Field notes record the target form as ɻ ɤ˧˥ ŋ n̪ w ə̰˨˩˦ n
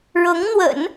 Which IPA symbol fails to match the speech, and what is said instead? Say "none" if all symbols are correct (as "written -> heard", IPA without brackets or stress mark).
none